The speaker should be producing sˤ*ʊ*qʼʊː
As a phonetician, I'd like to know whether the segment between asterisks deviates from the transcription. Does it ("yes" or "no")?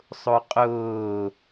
no